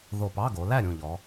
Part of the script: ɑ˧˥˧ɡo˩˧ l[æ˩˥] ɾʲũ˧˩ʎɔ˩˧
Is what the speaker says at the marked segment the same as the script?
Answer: no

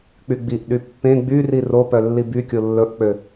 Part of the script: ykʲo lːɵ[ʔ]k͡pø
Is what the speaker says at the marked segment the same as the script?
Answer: yes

